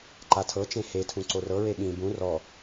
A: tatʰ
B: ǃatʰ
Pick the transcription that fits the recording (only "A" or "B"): B